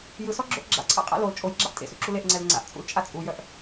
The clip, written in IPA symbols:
j ɯ s ɔ ɡ͡ǁ o ʔ ɡ͡ǁ a̰ ǀʰ a̰ qʼ a̰ l o l t͡ʃʼ o j ɡ͡ǁ a ʔ tʼ ḛ s ṵ ǁ u l e ʔ ŋ͡ǀ ɛ l ŋ͡ǀ a̰ ʔ t͡sʼ ṵ l t͡ʃʼ a t͡sʼ u j œ ʔ

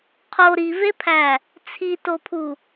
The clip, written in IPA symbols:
qʰ o ɾ i v e pʰ æ | t͡sʰ i t o pʰ u

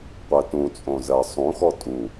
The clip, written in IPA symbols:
qʷ ɜ t ũ t͡sʼ õ z ɜ sˤ ũ x ɔ tʼ u

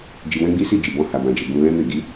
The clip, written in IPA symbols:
d͡ʒ i˧ w ɛ̃˦ ɡ͡b i˦ s i˦˨ d͡ʒ i˨ b ɔ̃˧ h a˨ b ã˨ d͡ʒ e˨ ɡ ũ˧ l ɛ̃˦ m e˦˨ ɡ i˨˦

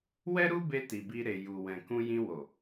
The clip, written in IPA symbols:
w ɛ˦ ɾ u˦ b e˧ t i˨ b i˧ ɾ e˨ j u˨ w ɛ̃˨ k ũ˧ j ĩ˧ w o˨

